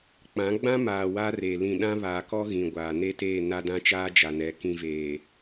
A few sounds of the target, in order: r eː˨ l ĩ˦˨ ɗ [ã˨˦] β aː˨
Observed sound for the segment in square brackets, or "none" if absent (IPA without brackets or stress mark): ã˦